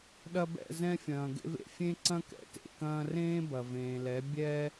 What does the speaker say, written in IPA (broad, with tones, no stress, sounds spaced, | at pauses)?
ɗ ɐ˧ b ɛ̰˦˨ z ɛ̃˧ fʲ ɐ̃ː˨ ɡ ḛ˧ v ḛ˨ fʲ ẽ˦ ǀ ɐ̃˦ k ɛ̰˨ t ḛ˨ k ɐ̃ː˧ r ẽː˦ b ɐ˨ v ẽː˨ l ɛ˨˦ bʲ ɛ˦